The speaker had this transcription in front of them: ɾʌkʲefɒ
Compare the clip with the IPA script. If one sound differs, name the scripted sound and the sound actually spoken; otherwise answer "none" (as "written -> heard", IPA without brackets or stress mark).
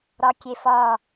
ʌ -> ɒ